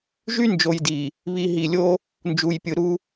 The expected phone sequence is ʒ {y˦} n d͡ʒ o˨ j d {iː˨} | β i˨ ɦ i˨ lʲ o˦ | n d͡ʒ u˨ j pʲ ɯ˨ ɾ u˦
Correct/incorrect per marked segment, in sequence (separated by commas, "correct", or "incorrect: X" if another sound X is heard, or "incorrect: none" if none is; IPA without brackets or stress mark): correct, incorrect: i˨